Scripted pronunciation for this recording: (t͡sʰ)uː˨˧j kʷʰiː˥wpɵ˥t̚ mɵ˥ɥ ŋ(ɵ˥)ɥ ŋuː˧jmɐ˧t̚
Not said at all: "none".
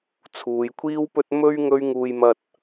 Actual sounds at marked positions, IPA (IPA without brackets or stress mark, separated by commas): t͡sʰ, ɵ˥